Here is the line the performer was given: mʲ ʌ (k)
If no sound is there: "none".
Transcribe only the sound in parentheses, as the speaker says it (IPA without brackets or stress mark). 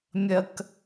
k